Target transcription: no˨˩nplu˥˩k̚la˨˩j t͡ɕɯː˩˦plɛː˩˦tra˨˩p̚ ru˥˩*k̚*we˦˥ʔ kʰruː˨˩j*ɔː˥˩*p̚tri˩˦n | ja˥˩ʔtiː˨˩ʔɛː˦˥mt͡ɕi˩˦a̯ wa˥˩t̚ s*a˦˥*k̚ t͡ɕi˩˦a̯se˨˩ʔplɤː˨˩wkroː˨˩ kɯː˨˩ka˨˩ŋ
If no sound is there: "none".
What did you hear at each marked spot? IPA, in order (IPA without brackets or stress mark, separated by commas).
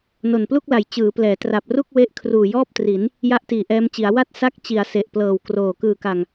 k̚, ɔː˥˩, a˦˥